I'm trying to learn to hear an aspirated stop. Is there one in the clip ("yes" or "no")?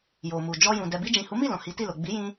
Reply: no